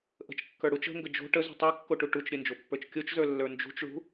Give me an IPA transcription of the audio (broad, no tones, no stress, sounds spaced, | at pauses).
ʔ ə̤ t͡ʃ kː ə˞ ɽ u t͡ʃ ə̤ ŋ ɡ ə d͡ʒ o̤ ʈ ə z ṳ tˤ o kː o ʈ u ʈ u t͡ʃ ɾʲ ə n d͡ʒ o pː ə˞ t͡ʃ kʲ o t͡ʃ z ə˞ lː ə˞ n d͡ʒ ṳ t͡ʃ ɭ ṳ